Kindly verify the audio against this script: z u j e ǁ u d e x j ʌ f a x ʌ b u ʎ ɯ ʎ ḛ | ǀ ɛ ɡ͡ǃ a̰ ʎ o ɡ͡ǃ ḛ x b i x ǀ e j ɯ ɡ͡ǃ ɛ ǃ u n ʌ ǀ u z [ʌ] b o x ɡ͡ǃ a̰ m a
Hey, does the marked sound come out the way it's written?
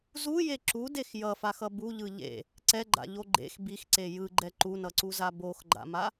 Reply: no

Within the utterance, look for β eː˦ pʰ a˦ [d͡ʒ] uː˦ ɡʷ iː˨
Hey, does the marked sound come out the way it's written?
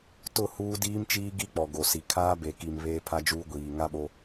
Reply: yes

